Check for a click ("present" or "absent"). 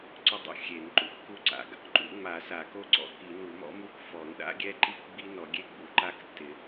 present